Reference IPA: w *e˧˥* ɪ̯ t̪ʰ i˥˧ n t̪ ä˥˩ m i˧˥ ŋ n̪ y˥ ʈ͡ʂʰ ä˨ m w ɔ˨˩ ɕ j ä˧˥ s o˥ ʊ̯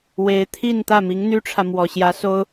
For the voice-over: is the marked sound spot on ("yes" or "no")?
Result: yes